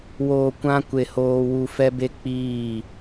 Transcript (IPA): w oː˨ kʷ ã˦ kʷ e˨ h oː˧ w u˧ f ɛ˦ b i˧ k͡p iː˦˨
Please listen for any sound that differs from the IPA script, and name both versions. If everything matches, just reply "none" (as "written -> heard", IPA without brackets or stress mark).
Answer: i˧ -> e˧